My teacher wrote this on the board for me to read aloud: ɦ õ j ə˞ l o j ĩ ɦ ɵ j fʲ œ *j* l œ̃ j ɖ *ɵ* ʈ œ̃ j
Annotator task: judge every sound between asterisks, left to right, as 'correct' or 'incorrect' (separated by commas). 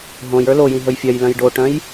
correct, incorrect